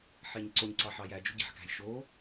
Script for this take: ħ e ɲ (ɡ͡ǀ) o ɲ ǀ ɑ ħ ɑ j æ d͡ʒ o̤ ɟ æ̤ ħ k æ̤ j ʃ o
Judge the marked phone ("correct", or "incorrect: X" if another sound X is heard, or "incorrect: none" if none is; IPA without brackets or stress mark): incorrect: ǀ